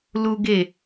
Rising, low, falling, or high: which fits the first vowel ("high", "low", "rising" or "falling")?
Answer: high